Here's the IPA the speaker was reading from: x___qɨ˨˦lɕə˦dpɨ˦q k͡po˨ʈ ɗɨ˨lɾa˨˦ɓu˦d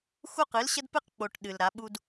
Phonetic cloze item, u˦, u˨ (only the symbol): u˦